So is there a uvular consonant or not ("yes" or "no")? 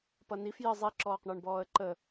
yes